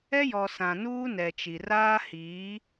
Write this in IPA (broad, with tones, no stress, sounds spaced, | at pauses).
ɛ˦ j ɔ˨ s ã˨ n uː˦ n ɛ˨ t͡ʃ i˨ r aː˦ h i˨˦